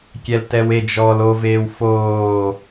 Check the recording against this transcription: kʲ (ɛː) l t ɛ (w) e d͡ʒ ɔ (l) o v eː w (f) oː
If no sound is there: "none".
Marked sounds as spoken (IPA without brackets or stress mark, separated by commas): ɛ, w, l, f